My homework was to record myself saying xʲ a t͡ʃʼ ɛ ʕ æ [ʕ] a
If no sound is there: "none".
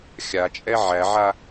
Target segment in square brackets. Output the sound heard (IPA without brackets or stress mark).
ʕ